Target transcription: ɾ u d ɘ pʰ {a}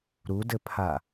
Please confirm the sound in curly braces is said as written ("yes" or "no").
yes